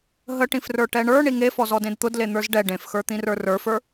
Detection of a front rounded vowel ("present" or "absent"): absent